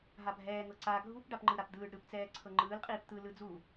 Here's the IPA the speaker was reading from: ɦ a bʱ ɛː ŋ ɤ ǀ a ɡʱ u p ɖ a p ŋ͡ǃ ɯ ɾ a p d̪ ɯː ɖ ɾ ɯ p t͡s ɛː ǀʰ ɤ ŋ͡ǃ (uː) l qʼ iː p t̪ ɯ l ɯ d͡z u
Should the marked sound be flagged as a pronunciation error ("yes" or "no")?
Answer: yes